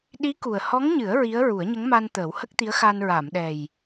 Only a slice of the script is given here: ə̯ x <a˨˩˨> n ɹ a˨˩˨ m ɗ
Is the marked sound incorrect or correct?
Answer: incorrect